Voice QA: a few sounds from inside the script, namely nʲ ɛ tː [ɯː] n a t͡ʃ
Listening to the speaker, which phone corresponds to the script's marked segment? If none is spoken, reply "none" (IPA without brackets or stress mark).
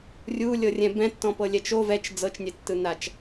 ɯ